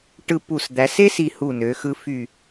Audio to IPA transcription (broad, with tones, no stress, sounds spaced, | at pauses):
ʈ ɯ˧ p u˧˩ s d̪ æ˩˧ s e˥ s i˧ h u˧˩ n ø˩˧ x ɯ˧ f y˧˩